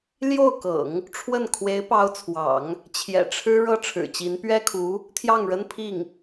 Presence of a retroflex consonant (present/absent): present